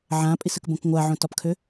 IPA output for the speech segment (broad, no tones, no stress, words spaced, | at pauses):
ʕãpʼisəkbõk ŋʷaʕõtɒpkʰø